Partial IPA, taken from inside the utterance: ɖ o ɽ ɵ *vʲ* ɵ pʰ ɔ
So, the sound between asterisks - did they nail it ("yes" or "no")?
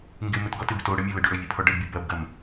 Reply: yes